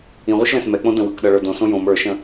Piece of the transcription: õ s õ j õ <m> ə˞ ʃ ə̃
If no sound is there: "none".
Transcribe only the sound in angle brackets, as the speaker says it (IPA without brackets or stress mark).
m